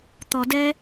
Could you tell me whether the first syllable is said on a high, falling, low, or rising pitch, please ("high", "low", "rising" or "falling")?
low